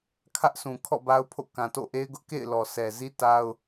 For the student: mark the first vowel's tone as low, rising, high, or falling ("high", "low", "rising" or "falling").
high